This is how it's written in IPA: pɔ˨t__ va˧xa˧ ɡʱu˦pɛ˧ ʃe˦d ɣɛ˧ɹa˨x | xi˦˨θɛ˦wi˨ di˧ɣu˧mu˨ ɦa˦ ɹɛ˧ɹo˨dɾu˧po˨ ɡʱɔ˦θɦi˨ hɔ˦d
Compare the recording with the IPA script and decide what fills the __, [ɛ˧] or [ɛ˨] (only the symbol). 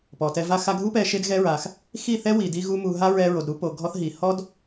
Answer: ɛ˧